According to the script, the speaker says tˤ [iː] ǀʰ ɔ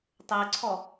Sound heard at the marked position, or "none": ɪː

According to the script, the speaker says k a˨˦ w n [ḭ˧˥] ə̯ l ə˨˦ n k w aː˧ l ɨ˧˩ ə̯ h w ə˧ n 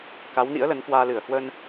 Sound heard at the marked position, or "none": ḭ˧˥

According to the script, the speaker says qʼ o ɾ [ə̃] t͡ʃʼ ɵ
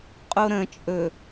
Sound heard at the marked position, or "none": ə̃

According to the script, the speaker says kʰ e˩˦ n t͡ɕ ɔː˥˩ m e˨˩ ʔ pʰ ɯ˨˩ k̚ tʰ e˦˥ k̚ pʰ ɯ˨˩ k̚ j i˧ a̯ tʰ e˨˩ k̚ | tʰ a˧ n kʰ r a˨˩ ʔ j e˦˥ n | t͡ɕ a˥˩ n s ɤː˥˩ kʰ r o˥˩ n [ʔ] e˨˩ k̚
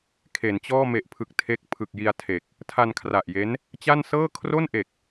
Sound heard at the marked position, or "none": ʔ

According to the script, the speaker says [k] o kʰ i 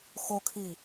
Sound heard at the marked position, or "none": x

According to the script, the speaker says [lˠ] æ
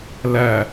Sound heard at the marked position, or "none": l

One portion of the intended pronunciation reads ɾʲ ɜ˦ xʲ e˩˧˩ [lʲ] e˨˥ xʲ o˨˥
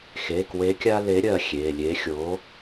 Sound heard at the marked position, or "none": lʲ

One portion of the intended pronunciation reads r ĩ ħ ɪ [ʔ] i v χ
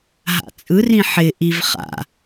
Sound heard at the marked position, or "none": ʔ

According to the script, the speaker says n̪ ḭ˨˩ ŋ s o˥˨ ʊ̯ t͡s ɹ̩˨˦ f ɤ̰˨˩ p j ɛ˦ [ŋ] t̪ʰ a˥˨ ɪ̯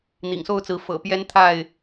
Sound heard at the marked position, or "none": n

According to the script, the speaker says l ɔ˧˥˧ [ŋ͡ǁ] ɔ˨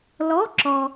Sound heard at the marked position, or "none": ǁ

